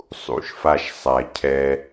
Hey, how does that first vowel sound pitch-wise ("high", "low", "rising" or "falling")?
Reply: low